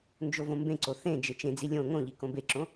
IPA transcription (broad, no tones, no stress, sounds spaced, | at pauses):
n d͡ʒ o v õ m b ẽ ǀ o θ ẽ d͡ʒ e t͡ʃ ẽ d͡z i lʲ õ ŋ õ ʎ i k õ b e ǁ õ